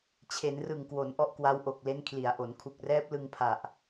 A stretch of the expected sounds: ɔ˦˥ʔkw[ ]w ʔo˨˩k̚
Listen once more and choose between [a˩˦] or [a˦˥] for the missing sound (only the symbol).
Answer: a˦˥